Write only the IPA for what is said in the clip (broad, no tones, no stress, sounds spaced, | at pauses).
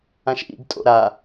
ã ʃ ʔ ḭ ɡ tʼ o̰ ɾ a